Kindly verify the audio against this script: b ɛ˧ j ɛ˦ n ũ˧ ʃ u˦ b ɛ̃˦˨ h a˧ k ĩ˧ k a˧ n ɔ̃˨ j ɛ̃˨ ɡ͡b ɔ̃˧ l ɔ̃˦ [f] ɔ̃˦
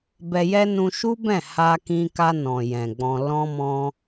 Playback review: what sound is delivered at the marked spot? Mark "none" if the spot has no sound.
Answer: m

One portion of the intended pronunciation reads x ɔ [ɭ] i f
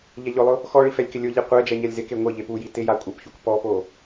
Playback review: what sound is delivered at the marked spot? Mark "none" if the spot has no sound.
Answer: ɭ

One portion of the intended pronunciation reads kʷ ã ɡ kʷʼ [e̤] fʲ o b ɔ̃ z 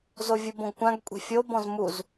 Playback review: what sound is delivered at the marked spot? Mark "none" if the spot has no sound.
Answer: e̤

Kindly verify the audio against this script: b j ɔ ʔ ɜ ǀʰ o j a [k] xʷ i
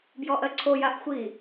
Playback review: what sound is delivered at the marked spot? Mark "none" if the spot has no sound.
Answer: ʔ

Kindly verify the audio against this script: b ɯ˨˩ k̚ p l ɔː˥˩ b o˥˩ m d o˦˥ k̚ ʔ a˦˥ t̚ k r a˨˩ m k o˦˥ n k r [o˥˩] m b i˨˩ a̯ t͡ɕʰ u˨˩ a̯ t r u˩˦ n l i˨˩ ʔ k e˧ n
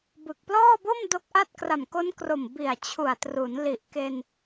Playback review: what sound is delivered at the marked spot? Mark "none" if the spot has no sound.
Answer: o˨˩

